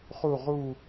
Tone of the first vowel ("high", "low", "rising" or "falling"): falling